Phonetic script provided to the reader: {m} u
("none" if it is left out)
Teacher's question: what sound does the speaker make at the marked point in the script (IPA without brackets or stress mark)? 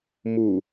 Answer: m